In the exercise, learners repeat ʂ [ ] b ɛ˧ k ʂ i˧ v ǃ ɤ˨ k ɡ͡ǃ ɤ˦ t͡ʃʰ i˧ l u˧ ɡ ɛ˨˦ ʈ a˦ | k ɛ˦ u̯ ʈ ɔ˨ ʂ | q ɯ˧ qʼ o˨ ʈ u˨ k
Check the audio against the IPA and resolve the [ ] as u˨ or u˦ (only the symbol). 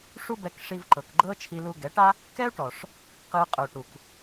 u˦